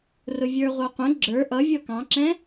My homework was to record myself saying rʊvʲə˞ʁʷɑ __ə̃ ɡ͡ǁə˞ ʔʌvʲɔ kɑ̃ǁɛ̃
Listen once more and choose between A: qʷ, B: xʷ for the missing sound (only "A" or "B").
A